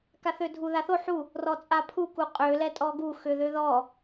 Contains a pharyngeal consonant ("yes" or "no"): yes